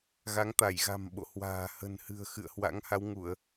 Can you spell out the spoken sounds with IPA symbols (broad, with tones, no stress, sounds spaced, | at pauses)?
ɣ a˨˦ ŋ t̪ a˧˩ j ɣ a̤˨˩ m ɓ o̰˧˨ h w a̤ː˨˩ h ə̤˨˩ n h ɨ̤˨˩ ə̯ x ɨ̰˧˨ ə̯ h w a̰˧˥ ŋ h a˨˦ w ŋ u˧˩˨ ə̯